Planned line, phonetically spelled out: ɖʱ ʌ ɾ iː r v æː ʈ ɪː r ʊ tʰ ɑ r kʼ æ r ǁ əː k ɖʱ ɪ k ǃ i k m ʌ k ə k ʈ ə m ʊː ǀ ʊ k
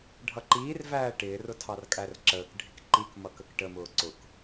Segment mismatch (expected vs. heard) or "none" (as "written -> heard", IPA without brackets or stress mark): ɾ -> ǃ